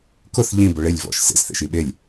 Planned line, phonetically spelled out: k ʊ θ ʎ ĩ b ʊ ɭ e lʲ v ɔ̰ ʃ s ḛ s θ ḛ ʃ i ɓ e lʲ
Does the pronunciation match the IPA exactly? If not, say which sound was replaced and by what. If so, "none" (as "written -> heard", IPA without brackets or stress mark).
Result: none